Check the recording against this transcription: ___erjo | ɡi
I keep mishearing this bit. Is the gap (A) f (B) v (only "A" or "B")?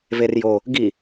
B